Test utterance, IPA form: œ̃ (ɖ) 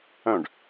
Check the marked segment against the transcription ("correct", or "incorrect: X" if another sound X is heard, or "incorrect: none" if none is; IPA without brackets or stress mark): correct